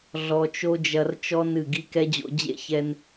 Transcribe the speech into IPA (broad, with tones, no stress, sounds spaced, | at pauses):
ɮ ɔ˧ t͡ʃ o˦ d͡ʒ ɐ˧ r t͡ʃ ɔ˦ n ɨ˦˨ ɡ i˦ k ɛ˦ d͡ʑ o̰˧ d͡ʑ ḛ˦ ç ɛ˧ n